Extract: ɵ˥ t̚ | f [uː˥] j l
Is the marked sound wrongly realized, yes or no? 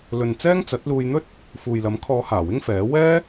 yes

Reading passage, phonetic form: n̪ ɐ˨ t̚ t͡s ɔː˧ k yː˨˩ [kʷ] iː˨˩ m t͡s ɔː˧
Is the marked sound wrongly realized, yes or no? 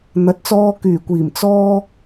no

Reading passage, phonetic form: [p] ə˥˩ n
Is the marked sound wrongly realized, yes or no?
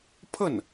yes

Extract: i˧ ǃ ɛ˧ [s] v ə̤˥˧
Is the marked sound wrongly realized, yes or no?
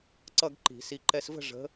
no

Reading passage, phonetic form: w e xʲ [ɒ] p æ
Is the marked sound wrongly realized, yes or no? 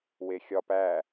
no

